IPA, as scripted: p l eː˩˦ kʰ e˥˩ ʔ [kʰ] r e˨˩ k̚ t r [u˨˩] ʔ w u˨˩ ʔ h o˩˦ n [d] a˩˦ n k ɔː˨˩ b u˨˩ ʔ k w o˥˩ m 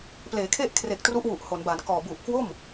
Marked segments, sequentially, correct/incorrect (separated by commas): correct, incorrect, incorrect